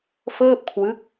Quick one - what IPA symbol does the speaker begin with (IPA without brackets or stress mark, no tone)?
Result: f